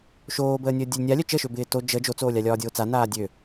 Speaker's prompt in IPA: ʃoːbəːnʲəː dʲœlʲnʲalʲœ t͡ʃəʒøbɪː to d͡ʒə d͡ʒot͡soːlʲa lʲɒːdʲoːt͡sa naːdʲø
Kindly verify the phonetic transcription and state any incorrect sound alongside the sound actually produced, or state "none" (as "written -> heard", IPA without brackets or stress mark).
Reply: ʒ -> ʃ